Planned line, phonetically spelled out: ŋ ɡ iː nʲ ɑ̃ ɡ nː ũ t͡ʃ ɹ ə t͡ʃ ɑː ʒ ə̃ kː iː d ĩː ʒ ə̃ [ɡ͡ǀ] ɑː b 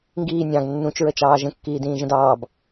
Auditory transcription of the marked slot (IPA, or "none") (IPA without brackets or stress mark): d